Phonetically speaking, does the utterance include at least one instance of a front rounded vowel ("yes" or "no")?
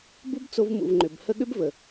yes